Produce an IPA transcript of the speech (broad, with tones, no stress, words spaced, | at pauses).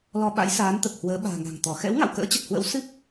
lɔ˧ ɓa̰˧˥jsaː˨˦nt̪ə˨˩p̚hwəː˨˦ ɓa̤ː˨˩ŋa̤˨˩ŋt̪ɔ˧˩ xɛ̰˧˥wŋa̰˧˨w kə̰ː˧˥t͡ɕə˨˩t̚hwə̰˧˥w sɨ˦˥p̚